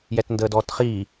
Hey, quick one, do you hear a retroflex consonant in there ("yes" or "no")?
no